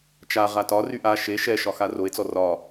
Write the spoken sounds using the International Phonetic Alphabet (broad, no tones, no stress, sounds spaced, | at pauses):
t͡ʃ a ʁ a t ɒ r y ʔ a ʃ e ʃ ɛ ʃ ɒ x a r o e̯ t͡s ɔ r ɒ